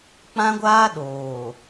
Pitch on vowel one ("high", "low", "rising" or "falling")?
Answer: high